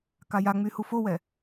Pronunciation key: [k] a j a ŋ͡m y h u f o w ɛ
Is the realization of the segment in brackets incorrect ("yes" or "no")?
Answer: no